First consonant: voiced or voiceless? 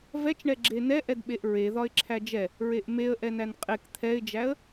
voiced